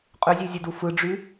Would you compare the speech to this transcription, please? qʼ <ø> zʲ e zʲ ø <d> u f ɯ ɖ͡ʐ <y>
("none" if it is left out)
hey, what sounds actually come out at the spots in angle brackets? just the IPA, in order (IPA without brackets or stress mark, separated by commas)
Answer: ø, d, y